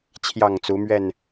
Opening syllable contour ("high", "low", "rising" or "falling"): falling